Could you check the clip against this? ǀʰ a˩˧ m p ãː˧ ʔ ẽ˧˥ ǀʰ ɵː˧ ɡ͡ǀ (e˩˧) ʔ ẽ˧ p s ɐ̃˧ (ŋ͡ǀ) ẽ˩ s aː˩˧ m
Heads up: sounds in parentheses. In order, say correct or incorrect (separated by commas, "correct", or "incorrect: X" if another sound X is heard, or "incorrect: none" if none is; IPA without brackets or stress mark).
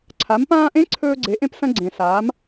correct, incorrect: ɡ͡ǀ